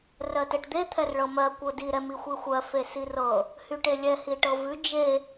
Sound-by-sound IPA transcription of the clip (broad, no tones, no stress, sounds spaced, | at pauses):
r ɜ t ɛ ʈ d̪ e t̪ʰ ɛ r ɭ ɤ m ɜ kʷ ɤ d i ɾ ɛ m i xʷ i xʷ ɜ f e s i r ɤ | h y ʈ e lʲ ɛ h i ʈ ɤ v ʉ d͡ʒ e